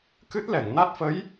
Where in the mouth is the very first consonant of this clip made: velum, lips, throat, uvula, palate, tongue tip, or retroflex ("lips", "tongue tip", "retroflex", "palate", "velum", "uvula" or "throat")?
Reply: velum